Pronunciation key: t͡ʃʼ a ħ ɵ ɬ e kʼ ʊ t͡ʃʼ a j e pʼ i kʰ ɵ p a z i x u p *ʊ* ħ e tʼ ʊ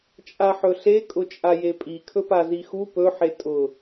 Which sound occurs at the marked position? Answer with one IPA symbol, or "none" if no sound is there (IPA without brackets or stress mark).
ɵ